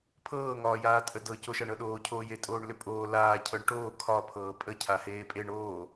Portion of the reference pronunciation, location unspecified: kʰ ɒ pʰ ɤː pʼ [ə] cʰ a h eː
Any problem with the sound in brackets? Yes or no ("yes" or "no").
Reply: no